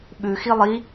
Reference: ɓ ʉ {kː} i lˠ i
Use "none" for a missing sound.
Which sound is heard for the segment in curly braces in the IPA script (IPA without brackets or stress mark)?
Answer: x